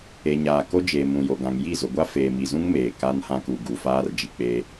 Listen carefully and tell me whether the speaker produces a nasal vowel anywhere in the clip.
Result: yes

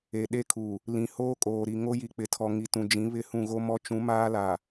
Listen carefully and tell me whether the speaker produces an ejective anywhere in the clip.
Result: yes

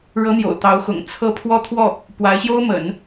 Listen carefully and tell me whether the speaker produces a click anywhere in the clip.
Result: no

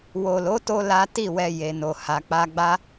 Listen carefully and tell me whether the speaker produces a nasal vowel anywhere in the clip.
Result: no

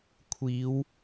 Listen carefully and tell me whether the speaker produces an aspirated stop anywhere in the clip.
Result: yes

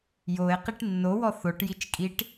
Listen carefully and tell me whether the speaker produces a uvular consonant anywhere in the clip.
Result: yes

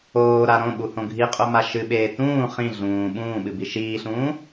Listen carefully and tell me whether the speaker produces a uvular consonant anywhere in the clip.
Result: yes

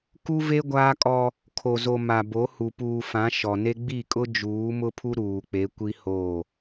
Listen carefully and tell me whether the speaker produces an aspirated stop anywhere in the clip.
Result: yes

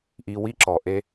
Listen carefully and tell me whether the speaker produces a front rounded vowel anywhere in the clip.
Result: no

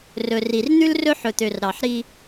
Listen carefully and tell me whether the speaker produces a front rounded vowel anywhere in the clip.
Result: yes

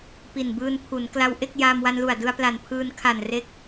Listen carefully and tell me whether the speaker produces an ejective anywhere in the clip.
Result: no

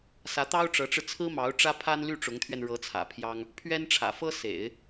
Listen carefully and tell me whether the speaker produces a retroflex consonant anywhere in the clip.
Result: yes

